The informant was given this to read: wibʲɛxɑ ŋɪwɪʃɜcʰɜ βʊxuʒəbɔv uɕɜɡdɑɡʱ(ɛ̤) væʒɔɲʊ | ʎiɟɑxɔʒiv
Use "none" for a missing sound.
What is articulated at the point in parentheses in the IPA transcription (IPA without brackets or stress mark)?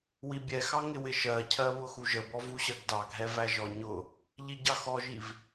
ɛ